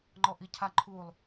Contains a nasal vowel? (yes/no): no